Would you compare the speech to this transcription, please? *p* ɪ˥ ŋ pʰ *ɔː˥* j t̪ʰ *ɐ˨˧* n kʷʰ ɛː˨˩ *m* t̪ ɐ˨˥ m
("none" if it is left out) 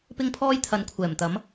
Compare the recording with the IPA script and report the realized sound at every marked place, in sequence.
p, ɔː˥, ɐ˨˧, m

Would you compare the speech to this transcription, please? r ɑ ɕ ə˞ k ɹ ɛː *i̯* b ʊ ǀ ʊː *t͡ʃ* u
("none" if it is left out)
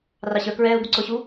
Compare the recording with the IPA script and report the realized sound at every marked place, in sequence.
u̯, ɕ

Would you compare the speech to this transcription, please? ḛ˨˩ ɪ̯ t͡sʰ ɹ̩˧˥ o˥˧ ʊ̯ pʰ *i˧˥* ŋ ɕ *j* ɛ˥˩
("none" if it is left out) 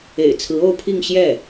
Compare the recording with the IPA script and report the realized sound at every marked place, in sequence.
i˥˧, j

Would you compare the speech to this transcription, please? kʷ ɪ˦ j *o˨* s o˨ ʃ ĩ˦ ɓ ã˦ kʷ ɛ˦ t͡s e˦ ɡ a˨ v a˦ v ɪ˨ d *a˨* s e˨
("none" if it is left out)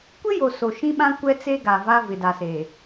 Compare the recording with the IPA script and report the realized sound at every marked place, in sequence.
o˨, a˨

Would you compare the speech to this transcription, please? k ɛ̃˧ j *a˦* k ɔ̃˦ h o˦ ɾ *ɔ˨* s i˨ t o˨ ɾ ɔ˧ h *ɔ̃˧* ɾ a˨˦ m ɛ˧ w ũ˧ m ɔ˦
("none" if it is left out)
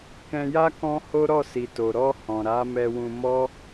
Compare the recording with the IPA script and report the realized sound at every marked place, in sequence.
a˦, ɔ˦˨, ɔ̃˨

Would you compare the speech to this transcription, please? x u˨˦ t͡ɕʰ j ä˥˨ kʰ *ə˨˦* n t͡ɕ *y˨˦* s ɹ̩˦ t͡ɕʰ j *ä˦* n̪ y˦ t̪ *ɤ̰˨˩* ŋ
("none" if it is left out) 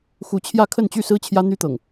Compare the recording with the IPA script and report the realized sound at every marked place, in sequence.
ə˥˨, y˥˨, ä˦, ɤ̰˨˩

